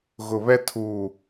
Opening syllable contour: low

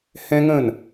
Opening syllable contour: high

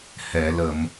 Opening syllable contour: low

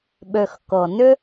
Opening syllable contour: low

